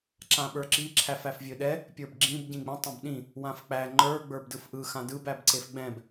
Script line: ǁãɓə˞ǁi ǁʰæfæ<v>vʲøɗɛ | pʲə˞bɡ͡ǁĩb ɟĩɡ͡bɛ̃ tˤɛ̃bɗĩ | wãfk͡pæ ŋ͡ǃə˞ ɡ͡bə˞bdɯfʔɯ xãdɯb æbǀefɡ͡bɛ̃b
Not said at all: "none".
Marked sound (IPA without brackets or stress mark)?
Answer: f